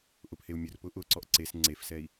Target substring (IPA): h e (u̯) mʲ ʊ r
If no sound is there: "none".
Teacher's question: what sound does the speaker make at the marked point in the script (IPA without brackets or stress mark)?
u̯